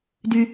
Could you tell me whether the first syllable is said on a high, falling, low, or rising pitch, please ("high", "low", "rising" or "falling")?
high